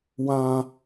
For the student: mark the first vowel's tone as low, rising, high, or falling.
high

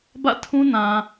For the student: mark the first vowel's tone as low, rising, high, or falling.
falling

